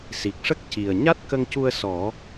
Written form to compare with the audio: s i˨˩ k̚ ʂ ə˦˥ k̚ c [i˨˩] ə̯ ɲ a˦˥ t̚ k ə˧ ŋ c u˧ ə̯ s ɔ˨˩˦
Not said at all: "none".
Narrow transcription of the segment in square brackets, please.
i˨˩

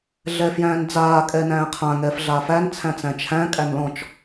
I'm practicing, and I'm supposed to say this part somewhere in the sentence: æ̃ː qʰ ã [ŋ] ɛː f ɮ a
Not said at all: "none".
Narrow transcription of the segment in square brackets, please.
ŋ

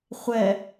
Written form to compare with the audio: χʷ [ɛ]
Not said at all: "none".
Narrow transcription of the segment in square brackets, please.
ɛ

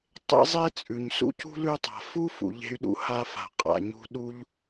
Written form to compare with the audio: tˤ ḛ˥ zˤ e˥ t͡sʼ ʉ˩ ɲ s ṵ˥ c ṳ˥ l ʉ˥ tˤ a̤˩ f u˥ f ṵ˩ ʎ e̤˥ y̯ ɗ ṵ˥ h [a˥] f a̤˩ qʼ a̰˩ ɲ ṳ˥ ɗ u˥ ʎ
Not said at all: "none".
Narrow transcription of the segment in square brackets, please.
a˥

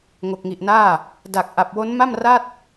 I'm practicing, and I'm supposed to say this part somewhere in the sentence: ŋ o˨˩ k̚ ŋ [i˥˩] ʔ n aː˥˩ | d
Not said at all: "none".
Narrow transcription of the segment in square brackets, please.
i˨˩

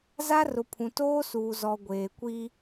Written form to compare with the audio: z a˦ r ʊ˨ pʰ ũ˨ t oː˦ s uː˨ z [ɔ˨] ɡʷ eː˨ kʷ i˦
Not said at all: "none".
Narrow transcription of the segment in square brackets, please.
ɔ˨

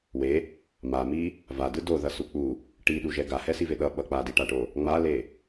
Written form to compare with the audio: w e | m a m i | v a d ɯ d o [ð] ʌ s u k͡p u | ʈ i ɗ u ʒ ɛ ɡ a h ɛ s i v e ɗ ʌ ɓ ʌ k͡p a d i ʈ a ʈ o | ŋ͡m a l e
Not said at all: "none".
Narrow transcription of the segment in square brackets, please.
ð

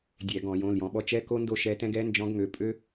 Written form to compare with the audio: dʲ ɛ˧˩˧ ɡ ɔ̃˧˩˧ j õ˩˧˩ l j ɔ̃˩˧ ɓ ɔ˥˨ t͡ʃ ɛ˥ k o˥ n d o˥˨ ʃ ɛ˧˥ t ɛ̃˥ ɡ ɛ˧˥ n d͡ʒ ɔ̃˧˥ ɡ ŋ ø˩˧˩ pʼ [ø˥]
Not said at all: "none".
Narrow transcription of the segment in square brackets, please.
ø˥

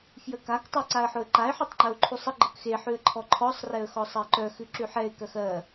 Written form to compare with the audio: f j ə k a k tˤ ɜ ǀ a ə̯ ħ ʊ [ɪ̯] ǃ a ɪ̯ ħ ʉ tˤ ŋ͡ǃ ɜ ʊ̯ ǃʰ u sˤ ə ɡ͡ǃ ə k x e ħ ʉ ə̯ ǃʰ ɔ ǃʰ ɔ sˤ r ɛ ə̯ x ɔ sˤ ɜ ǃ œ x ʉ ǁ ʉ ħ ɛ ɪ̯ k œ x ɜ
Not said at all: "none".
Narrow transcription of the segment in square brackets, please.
ə̯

